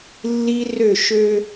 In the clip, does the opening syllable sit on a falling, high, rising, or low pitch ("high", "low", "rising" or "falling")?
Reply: high